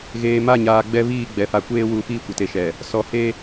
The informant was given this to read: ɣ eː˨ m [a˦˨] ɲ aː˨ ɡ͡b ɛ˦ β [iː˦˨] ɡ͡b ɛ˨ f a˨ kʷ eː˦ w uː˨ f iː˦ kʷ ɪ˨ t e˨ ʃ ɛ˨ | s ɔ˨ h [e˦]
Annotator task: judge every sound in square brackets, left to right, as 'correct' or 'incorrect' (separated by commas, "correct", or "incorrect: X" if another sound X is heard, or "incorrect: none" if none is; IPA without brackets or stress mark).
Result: correct, correct, correct